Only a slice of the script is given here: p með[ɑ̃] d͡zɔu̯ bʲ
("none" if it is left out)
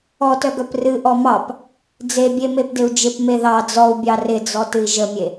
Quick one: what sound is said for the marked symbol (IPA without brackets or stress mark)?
ɑ